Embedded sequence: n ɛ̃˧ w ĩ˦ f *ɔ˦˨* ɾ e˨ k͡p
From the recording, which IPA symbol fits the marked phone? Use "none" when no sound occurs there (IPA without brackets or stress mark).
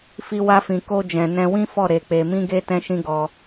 ɔ˦˨